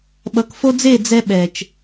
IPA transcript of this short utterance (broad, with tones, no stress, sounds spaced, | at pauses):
ɓ ʌ˨ k f o˧ d͡z e˦˨ d͡z ɛ˧ ɓ ɛ˨ t͡ʃ